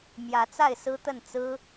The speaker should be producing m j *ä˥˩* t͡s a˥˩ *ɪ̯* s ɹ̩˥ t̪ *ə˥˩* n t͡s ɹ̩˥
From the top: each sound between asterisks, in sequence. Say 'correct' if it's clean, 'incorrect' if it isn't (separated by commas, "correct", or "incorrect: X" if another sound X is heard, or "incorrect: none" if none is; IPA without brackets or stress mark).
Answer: incorrect: ä˧˥, correct, correct